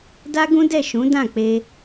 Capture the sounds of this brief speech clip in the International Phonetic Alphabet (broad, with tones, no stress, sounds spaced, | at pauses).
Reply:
d a˦ ɡ ũ˦ d ɛ˦˨ ʃ ũ˨˦ d ã˦˨ k͡p e˧